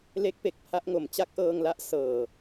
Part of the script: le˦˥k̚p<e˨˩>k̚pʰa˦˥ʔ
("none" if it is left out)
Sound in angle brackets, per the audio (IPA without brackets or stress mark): e˨˩